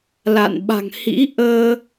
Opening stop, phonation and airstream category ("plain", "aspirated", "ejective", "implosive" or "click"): implosive